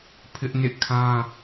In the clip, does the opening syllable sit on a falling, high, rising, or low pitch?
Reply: high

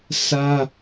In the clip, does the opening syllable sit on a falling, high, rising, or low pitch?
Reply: high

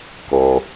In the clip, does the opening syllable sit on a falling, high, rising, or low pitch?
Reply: low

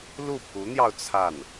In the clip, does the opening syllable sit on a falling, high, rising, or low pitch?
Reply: falling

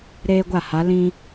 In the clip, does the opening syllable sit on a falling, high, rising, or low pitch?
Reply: high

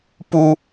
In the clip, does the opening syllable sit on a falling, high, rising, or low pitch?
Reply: high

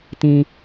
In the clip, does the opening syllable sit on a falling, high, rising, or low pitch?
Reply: low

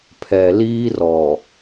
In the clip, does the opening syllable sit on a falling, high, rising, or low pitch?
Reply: low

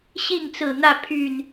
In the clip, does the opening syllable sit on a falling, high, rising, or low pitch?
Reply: falling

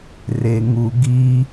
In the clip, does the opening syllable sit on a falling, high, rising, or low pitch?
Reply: low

